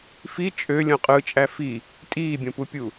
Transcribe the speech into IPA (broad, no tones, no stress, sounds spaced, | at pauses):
f i t͡ʃʼ ø lʲ õ qʼ ɯ t͡ʃʼ æ f i | tʼ iː bʲ õ p u pʲ u